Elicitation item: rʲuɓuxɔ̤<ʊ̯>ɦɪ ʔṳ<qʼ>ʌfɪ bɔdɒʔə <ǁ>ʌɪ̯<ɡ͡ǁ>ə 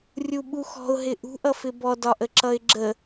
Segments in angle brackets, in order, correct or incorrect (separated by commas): correct, incorrect, correct, correct